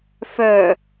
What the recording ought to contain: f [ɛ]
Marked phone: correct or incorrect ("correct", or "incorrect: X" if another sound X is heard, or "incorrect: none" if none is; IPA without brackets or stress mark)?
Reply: incorrect: œ